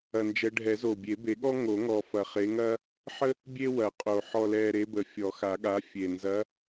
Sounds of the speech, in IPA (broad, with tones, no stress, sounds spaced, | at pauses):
ɐ˨˩ n d͡ʒ ɛ˨˦ ɖʱ ɛ˨˩˦ z o˨˩ bʲ e˨˩˦ b e˨˩˦ ɠ ɔ˥ ŋ o˨˩˦ ŋ ɔ˨˩ f ɐ˨˩ χ e˨˦ ŋ ɐ˥ | ħ ə˥ | bʲ e˥ w ɐ˨˩˦ qʼ o˨˩ ħ ɔ˨˩ l ɛ˨˩ ɾ e˨˦ b ə˨˩ fʲ ɔ˨˩˦ x a˨˩˦ ɠ a˨˦ fʲ e˨˩ n z ɐ˨˦